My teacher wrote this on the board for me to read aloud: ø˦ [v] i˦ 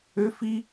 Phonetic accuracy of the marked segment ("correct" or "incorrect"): incorrect